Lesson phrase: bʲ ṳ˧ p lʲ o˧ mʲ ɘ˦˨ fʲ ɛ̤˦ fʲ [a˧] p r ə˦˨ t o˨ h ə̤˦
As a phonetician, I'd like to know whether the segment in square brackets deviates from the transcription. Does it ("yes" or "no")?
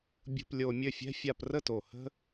no